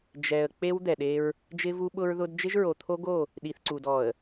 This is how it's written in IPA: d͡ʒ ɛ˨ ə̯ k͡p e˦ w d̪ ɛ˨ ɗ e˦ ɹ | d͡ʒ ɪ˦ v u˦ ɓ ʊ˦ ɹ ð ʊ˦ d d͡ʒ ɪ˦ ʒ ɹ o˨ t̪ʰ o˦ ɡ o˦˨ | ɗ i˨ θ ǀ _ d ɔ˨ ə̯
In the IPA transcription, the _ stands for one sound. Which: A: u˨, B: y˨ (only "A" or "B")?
A